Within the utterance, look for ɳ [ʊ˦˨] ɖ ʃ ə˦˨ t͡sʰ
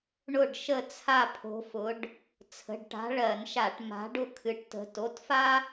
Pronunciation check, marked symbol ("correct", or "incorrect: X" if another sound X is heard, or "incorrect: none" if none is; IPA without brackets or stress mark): correct